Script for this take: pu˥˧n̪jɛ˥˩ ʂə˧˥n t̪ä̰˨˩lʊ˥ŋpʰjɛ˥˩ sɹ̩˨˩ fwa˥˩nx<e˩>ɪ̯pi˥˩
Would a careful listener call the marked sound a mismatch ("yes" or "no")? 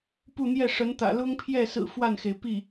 no